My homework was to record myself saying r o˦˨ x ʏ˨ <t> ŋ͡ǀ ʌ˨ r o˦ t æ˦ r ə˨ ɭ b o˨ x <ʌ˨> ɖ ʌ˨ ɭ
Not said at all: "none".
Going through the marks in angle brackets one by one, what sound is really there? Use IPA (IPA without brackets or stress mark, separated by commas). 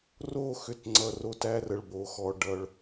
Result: t, ɔ˨